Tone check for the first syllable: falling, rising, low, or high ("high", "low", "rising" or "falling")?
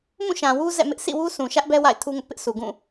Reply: falling